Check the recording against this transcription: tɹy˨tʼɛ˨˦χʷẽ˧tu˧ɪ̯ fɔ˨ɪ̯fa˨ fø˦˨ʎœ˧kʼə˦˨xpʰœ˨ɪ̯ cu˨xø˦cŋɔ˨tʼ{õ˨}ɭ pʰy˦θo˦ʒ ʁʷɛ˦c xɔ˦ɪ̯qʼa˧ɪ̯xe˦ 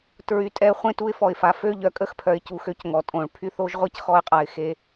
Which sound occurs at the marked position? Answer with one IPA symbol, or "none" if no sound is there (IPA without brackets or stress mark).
õ˨